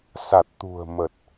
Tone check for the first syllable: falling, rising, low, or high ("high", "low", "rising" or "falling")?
low